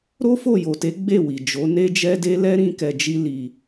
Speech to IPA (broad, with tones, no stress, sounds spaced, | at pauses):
ɾ o˦ f o˦˨ j o˨ t e˨˦ ɡ͡b e˦˨ w i˨ d͡ʒ o˨˦ n e˦ d͡ʒ ɛ˦ d e˦ l ɛ˦ ɾ ĩ˦ k ɛ˧ d͡ʒ i˦ l i˧